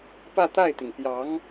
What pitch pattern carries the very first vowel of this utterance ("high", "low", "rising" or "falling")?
falling